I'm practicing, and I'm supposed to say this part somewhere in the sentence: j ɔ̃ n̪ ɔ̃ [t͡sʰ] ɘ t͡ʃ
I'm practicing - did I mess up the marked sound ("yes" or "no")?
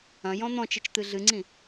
yes